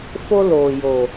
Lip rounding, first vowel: rounded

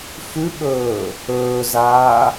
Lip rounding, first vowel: rounded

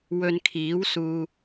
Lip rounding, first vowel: rounded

